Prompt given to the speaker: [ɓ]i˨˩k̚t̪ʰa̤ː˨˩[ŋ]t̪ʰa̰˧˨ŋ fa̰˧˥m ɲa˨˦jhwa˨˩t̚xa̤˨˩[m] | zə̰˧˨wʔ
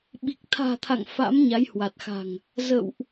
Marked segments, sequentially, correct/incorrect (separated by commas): correct, incorrect, incorrect